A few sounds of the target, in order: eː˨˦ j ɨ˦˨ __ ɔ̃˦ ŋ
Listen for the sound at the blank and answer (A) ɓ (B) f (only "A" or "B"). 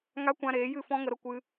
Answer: B